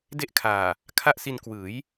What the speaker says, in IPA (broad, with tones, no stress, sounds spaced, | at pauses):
d e˦˥ ʔ kʰ aː˨˩ | kʰ a˥˩ ʔ s i˧ n k w ɯː˩˦ j